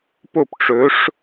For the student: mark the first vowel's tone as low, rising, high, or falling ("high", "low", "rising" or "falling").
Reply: falling